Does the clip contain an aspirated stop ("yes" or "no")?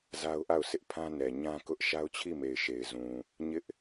yes